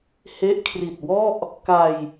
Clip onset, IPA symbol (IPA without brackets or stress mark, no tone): h